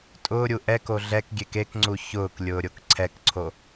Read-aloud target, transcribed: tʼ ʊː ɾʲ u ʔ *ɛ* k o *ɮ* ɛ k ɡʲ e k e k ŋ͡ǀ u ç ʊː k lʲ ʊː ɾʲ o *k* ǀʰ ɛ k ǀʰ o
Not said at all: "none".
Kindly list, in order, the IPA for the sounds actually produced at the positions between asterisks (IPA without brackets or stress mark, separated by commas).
ɛ, ɮ, k